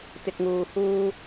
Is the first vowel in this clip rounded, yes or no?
no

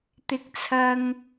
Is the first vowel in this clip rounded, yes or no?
no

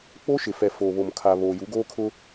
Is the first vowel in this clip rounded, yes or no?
yes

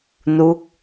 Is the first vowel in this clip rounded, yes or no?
yes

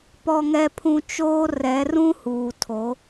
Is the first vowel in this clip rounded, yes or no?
yes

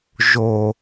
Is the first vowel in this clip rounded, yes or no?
yes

